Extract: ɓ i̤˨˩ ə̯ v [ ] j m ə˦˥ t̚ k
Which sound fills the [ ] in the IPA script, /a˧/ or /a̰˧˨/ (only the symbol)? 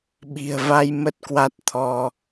a˧